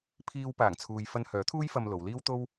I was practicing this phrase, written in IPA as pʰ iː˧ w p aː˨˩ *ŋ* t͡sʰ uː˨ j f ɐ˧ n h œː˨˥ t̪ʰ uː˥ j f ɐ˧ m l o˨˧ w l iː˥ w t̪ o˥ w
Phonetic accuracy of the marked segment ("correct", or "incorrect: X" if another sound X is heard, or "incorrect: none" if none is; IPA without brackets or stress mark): correct